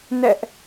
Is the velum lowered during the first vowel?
no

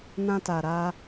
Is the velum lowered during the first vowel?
yes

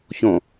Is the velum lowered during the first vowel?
yes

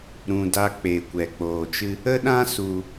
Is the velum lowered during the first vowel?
yes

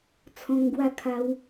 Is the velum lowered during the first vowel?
yes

